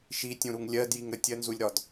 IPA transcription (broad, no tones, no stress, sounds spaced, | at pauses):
ʃ i tʲ ũ ɾ u ŋ lʲ ɜ d j i ŋ ɾ ə tʲ ɜ n z u lʲ ɾ ɒ d